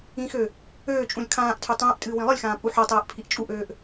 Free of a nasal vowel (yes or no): no